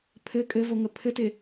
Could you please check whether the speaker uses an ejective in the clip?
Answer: yes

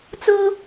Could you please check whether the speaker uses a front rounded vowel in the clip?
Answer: no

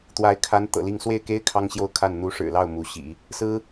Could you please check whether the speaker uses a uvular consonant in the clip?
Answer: no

